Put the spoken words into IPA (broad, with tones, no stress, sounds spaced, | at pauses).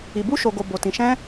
i˨ b u˧ ʃ o˨ ɡ o˨ b o˨ t ĩ˨ ʃ ɛ̃˧